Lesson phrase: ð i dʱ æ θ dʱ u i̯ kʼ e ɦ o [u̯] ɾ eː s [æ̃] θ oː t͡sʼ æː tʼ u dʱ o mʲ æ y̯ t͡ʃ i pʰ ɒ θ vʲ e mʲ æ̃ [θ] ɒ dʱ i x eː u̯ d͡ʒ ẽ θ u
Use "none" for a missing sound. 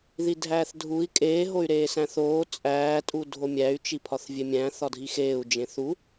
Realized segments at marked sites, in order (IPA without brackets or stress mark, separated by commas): y̯, æ̃, θ